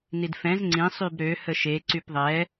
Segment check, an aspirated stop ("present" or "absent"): absent